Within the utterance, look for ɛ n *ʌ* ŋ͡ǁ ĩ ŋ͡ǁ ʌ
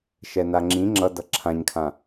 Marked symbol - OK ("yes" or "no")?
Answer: no